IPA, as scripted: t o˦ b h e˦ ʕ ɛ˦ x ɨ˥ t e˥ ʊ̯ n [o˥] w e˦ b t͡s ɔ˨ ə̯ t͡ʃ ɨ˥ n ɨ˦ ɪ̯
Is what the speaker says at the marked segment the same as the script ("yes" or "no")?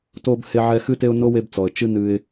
yes